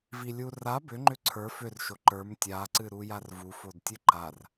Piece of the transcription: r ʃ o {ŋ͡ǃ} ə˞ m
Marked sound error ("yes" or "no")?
yes